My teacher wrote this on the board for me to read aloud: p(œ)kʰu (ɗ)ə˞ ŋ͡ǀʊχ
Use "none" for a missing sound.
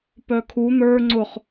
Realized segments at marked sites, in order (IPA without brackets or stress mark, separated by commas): œ, n̪